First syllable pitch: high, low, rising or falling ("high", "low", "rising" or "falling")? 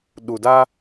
low